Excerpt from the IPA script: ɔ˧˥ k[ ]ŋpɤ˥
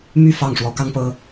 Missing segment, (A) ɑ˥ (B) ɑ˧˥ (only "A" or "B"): A